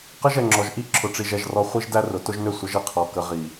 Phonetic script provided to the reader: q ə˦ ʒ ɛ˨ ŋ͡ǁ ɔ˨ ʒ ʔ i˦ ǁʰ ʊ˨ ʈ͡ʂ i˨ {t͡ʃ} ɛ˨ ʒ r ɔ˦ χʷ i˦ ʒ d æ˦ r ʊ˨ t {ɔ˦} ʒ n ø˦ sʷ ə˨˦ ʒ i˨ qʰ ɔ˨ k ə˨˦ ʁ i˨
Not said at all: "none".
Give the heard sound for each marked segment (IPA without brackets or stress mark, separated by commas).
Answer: ʒ, ʊ˦